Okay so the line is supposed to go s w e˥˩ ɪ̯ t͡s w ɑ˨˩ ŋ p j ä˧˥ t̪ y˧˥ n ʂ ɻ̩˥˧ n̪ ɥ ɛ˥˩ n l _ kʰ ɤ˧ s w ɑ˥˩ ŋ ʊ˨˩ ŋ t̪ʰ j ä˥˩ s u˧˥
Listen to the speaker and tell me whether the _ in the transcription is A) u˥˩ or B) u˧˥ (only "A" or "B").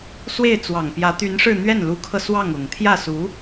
B